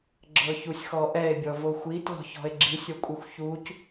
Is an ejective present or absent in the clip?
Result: present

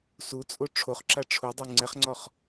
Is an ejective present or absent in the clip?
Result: present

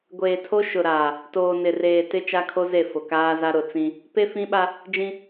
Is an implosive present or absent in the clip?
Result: present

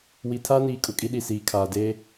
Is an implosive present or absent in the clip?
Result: present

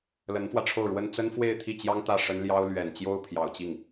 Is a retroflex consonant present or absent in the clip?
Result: present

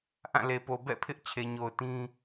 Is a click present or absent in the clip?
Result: absent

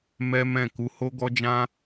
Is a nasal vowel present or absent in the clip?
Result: present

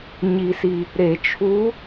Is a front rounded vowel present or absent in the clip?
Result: absent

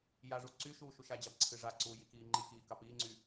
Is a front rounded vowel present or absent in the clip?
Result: present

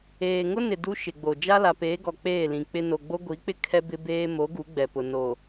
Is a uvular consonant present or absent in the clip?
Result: absent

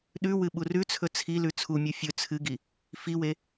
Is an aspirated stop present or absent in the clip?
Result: present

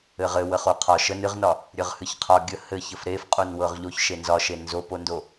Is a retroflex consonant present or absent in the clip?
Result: absent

